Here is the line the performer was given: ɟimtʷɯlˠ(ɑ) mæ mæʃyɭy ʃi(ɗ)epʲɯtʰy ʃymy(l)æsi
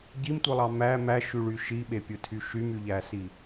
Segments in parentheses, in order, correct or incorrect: correct, incorrect, incorrect

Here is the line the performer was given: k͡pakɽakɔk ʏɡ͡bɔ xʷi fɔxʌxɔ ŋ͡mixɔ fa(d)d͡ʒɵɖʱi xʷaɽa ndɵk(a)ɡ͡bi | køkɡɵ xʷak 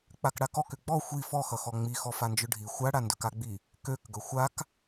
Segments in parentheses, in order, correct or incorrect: incorrect, correct

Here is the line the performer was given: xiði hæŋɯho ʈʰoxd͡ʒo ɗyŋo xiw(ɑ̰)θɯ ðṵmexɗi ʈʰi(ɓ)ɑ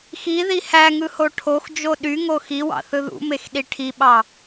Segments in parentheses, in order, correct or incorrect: correct, correct

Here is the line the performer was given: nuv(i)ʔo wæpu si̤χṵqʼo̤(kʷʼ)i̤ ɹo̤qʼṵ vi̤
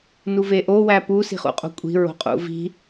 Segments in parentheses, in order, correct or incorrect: incorrect, correct

